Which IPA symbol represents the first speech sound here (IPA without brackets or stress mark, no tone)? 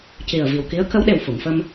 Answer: c